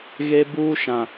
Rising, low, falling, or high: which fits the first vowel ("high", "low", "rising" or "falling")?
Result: high